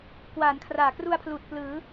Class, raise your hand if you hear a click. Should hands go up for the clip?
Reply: no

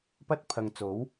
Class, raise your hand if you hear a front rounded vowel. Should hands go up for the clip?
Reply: no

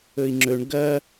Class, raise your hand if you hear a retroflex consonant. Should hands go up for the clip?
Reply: yes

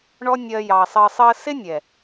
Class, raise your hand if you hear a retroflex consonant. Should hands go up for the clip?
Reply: yes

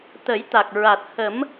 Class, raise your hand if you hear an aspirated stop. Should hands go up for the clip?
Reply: no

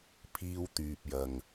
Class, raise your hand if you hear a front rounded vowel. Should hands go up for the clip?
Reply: yes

